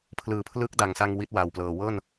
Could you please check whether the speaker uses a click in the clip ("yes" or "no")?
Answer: no